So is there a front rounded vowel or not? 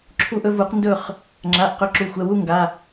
no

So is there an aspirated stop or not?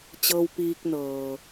no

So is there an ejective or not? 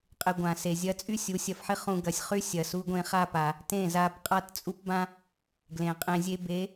yes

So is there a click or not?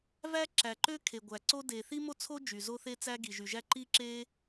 yes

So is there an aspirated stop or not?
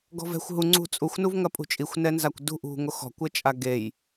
no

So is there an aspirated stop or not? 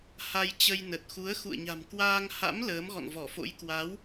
no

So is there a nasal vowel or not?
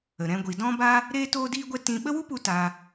yes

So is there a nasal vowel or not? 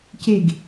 no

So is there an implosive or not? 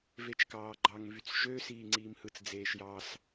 no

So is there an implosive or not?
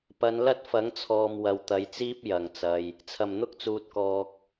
no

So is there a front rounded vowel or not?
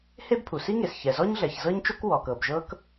no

